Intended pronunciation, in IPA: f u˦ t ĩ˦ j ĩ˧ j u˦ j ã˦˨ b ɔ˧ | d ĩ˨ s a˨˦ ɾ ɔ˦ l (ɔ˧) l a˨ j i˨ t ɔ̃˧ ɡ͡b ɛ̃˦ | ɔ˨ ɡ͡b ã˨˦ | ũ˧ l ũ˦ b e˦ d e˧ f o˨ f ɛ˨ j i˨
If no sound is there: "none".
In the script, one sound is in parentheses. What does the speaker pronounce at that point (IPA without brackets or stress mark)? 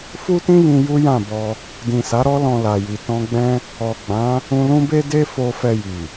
ɔ̃˧